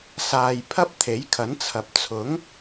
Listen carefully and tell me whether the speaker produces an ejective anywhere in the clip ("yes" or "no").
no